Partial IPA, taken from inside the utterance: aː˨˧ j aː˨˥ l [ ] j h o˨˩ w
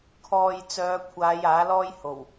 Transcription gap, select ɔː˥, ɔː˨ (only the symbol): ɔː˥